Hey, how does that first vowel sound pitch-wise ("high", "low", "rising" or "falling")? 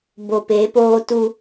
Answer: low